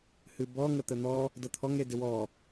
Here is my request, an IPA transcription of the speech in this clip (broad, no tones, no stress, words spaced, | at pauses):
hɨbɔŋə t̪ən̪ɔ | dɤt̪ʰɔŋ edɪwɔ